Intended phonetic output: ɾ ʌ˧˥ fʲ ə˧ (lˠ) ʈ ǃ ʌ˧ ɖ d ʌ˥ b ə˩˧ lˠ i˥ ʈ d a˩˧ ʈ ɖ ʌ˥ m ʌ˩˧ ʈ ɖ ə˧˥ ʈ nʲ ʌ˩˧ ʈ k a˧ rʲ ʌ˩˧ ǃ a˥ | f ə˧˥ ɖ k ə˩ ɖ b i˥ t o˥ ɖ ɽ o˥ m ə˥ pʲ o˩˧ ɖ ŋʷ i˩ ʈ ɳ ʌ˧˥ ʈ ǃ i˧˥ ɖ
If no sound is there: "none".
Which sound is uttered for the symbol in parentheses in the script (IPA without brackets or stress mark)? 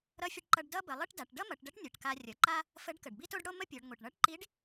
none